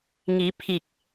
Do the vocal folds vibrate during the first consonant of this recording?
yes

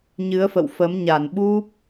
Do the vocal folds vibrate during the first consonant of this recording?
yes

